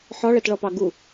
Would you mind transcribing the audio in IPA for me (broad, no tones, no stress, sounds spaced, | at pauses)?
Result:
ħ ɒ ɭ ɛ t ɭ ɔ p ɑ ɡ u